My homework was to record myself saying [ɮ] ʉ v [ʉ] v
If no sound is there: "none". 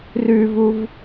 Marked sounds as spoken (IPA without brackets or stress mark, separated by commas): r, u